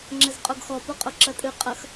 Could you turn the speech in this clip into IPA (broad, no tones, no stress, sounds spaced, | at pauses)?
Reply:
ŋ͡ǁ ɘ z qʼ o ɡ x ɔ p o qʼ o ǁ ɐ tʼ ɨ qʼ ɐ x